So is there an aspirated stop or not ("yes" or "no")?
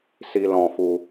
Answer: no